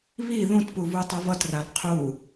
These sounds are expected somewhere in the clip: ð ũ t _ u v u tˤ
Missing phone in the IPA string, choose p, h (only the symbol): p